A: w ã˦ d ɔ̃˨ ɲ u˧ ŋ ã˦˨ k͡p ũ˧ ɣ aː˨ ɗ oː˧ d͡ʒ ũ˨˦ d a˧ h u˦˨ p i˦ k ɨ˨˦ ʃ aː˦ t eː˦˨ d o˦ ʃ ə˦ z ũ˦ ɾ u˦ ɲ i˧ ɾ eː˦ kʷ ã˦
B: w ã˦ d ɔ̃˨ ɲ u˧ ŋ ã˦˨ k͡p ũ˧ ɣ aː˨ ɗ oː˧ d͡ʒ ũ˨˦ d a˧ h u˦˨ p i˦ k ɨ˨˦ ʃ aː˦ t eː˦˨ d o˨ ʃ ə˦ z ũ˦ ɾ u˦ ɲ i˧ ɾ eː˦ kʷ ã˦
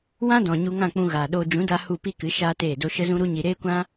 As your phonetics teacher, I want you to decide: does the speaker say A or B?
A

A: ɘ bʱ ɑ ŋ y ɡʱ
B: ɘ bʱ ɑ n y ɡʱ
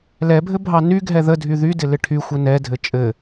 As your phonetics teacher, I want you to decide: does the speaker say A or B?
B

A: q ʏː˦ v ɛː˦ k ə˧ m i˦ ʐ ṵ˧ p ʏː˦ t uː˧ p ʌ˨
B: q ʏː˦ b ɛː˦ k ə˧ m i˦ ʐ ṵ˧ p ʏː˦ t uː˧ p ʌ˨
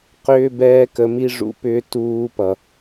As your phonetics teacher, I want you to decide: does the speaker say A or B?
B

